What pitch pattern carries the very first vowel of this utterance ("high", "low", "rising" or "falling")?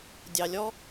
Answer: low